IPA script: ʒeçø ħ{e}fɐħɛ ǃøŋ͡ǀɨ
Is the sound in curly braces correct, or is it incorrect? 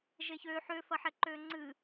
incorrect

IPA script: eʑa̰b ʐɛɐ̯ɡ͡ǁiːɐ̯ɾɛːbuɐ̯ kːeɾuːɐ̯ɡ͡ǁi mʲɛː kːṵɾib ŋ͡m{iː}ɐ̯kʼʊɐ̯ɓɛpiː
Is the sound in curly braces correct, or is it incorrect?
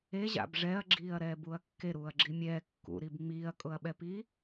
correct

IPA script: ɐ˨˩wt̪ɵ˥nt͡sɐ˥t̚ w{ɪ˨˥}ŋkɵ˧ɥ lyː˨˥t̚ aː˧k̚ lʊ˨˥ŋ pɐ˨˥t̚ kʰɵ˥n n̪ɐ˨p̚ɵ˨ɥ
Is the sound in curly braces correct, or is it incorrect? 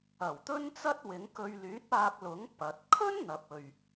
correct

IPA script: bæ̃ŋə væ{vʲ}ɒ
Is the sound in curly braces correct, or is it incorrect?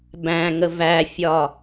incorrect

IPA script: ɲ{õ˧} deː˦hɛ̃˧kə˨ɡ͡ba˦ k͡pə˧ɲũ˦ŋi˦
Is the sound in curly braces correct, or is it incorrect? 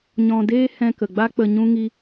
incorrect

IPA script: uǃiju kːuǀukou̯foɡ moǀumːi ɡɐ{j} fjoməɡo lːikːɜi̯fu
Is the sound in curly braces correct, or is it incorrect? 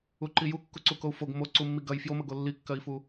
correct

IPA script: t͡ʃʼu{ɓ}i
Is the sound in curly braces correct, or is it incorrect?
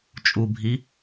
incorrect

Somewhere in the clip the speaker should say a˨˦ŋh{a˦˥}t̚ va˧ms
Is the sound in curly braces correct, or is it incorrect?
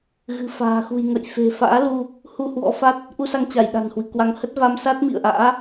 incorrect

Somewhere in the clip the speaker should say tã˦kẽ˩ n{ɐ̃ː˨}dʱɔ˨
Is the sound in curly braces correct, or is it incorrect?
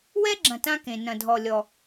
incorrect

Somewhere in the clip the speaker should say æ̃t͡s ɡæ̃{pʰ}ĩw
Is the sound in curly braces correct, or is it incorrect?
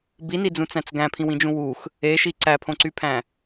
correct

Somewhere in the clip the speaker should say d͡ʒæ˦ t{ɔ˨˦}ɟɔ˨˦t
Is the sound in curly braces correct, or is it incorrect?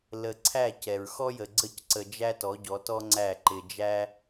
correct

